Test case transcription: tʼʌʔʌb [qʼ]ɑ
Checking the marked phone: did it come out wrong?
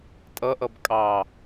yes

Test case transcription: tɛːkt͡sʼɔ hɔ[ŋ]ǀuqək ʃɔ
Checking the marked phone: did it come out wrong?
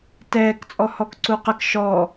yes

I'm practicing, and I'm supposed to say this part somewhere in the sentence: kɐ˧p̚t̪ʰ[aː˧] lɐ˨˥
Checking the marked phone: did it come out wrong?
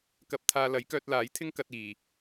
no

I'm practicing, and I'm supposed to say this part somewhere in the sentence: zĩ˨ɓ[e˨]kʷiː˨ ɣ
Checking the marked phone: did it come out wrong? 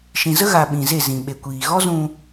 no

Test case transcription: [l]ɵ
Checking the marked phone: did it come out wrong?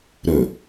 yes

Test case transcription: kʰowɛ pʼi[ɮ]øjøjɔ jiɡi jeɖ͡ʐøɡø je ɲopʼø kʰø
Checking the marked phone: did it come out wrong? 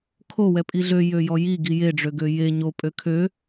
no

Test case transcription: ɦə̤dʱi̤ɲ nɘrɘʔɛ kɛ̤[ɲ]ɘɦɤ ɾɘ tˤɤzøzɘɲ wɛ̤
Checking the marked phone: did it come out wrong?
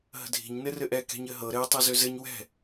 no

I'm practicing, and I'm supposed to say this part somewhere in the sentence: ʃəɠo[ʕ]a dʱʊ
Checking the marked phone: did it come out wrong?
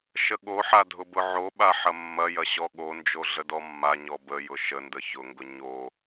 yes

